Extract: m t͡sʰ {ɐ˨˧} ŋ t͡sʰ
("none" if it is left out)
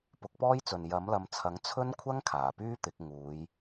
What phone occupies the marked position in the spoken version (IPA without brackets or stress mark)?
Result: ɐ˨˥